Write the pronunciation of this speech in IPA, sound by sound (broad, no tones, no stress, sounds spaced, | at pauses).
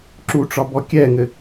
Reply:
ǁ u ʈ͡ʂ ɒ b ɔ kʲ ɛ ŋ ɘ